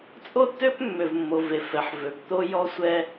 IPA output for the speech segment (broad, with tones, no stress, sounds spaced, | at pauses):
t͡sʼ o˦ tː ø˦ p mː ø˨ v mː o˨ v e˨ f ɛ˨ ħ v ø˨˦ p t̪ o˦ j ɔ˦ sʷ ɛ˦